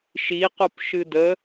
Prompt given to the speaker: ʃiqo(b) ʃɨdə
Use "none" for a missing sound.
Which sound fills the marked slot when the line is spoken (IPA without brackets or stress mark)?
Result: p